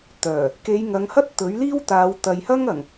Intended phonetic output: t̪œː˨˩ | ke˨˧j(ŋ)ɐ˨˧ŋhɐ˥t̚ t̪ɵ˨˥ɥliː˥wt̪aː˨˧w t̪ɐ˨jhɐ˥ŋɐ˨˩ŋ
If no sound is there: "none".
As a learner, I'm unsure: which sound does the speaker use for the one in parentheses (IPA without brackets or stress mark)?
ŋ